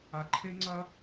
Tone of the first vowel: low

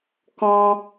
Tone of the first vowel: high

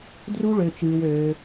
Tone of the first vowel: high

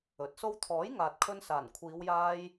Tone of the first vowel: rising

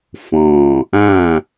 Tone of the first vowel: low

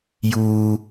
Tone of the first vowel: high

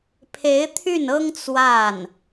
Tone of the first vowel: rising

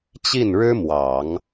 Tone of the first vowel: falling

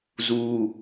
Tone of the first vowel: high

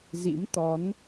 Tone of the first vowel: rising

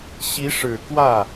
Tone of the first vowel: rising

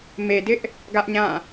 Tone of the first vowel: low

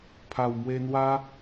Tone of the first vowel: low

